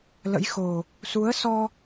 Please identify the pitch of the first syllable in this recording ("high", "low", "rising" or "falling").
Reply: rising